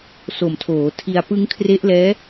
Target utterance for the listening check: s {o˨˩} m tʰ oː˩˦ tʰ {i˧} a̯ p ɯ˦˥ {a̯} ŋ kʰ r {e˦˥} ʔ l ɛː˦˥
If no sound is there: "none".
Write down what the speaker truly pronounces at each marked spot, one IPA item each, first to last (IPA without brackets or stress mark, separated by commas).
o˨˩, i˧, none, e˦˥